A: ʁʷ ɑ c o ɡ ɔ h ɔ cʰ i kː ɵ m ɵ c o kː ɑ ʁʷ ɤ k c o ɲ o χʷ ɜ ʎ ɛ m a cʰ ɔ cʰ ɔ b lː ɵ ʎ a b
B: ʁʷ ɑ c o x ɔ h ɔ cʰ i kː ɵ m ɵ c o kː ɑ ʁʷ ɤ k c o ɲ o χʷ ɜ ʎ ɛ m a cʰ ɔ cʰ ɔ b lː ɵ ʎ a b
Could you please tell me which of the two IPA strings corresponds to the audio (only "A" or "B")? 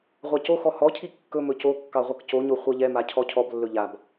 B